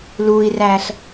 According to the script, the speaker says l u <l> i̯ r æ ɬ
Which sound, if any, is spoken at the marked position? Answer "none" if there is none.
none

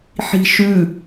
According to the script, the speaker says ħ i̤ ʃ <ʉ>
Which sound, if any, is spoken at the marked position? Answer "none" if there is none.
ʉ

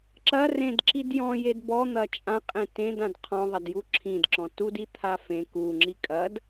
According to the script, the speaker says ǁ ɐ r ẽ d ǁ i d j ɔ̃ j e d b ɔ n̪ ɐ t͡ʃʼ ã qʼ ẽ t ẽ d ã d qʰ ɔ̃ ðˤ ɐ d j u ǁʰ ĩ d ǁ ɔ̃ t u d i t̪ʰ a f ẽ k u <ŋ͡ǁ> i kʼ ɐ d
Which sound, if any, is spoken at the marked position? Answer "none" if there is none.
ŋ͡ǁ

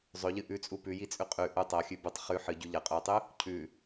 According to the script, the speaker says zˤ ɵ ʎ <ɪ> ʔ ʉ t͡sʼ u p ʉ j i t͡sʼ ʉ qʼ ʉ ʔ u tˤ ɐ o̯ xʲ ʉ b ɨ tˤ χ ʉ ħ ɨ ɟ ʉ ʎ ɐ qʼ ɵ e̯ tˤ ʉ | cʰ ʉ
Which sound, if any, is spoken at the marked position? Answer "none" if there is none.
ɨ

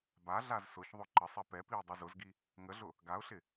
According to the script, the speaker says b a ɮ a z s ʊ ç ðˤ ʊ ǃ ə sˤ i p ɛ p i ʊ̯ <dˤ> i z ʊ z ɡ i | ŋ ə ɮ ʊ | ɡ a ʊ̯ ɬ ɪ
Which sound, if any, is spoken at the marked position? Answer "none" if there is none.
dˤ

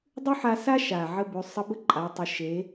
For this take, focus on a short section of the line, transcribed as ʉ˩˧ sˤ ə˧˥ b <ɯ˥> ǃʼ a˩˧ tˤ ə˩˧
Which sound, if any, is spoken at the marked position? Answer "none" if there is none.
ə˥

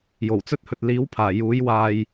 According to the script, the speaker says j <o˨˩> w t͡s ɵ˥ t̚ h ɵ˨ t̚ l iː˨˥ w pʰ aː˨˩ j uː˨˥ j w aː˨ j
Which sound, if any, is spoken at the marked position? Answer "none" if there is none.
o˨˩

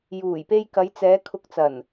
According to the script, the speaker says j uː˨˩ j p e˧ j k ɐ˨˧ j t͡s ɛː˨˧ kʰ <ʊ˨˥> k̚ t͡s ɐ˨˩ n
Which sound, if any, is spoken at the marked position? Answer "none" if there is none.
ʊ˨˥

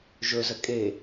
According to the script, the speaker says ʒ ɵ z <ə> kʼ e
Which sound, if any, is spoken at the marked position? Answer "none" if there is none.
ə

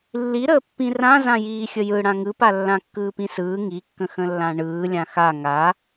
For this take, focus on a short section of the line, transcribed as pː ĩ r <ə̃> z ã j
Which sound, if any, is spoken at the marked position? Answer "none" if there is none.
ã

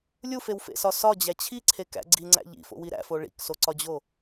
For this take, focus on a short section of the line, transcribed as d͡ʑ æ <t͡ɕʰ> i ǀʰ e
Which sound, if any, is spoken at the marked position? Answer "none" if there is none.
t͡ɕʰ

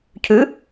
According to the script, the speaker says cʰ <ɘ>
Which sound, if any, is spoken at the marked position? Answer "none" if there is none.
ʉ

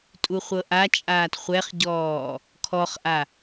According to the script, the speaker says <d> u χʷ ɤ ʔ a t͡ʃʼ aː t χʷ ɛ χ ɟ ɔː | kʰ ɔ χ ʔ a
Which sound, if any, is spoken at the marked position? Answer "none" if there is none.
tʼ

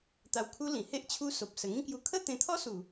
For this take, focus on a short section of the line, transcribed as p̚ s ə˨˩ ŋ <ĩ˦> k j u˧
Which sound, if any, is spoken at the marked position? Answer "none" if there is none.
ĩ˦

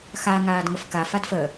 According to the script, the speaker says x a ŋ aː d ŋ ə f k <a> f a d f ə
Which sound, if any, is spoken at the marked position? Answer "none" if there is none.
a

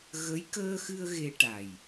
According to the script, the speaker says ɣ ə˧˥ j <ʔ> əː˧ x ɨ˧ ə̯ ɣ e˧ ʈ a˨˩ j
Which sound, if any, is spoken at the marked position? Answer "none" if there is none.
k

